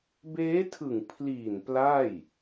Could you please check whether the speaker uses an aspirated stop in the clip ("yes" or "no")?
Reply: yes